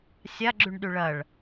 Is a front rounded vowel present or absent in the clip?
present